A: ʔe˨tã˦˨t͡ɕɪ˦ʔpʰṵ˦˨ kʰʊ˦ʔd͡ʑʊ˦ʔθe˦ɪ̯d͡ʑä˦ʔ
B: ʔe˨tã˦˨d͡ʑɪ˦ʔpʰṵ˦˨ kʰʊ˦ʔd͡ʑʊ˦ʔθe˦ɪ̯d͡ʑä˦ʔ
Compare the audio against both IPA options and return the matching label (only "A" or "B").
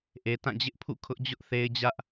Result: B